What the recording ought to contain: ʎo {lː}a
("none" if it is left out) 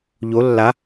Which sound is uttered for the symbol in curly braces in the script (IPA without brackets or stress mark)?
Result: lː